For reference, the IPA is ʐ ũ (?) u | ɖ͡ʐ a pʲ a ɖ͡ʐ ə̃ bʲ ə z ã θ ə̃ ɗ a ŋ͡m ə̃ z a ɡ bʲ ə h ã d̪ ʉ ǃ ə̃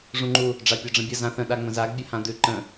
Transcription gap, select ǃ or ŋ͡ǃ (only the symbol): ŋ͡ǃ